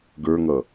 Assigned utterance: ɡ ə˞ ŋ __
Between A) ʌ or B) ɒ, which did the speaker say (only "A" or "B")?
A